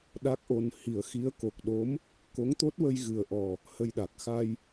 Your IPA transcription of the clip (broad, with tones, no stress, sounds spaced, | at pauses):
ɗ a˦˥ k̚ ʔ o˧ n h i˨˩˦ ə̯ x i˧˥ ə̯ k o˨˩ k̚ ɗ o˧˥ m | k o˧˥ ŋ t̪ o˦˥ t̚ w ə˧ j ɣ ɨ˨˩ ə̯ ʔ ɔ˨˩ | h ə˧ j ɗ a˨˩ k̚ x a˧ j